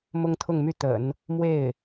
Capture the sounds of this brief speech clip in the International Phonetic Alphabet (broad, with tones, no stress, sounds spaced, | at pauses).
m ʊ˥ ŋ t̪ʰ ʊ˥˧ ŋ m y˥˩ t̪ ə̰˨˩˦ n | m w e˥˩ ɪ̯